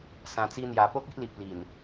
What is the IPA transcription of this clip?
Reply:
sã˨˩t͡si˧n̪ja˨˩ po˦k̚i˦ʔli˨p̚ li˨˩n

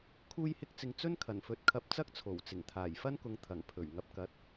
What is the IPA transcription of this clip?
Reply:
kʰuː˧jhɪ˧k̚t͡sɪ˨ŋ t͡sɵ˥nkʰɐ˨˩nfɵ˨˥t̚ kʰɐ˧p̚t͡sɐ˥k̚t͡sʰo˨˩wt͡sɪ˨˩ŋ t̪ʰaː˨˩jfɐ˥nkʊ˨˧ŋ t̪ʰɐ˨˩ŋpʰɵ˨˩ɥ ŋɐ˨˥p̚kɐ˨˥t̚

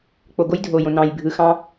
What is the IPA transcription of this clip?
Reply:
k͡po˨ɡo˦jdʱo˨jõ˨ nɑ̃˨j bʱɯ˨xɑ̃˦

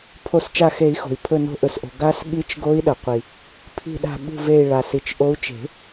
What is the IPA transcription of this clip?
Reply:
pʰo˨˩˦st͡ʃa˧˩xe˨˩˦i̯xo̤˩i̯ pʰɵ˧˩no̤˨˦ʔɵ˩sʔo̤˩ ɡa˨˦s ɠi˨˦t͡ʃɡo˨˦i̯ ɗɐ˩ qʷi˩ | pʰi̤˧˩ɗa̤˧˩ ɓṳ˧˩ve˧˩i̯ ɭa˩si˩t͡ʃ ʔo˨˦u̯t͡ʃe̤˨˩˦

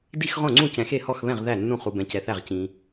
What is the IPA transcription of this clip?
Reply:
di˥˩xʁõ˥˩ŋ͡ǀũ˥˩ cɛ̃˨xe˥˩hɔ˥˩xβɛ̃˥˩ʁ ðæ˥˩nːũ˥˩ χu˨bɛ̃˨cɛ˨θæ˥˩ʁ cĩ˨

